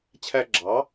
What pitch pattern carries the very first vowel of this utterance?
high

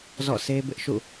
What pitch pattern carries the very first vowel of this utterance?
falling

